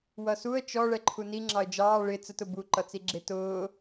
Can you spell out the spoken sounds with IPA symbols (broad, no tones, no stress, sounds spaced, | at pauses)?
w ʌ s u ə̯ t͡ʃ ɔ ɭ ɛ ǃʰ u n i ŋ͡ǁ ɑ ə̯ d͡ʒ ɑː ɭ ɪ t͡s ə t ʊ b u ǃ ʌ t͡s i ɡ͡ǁ ɪ t ʊː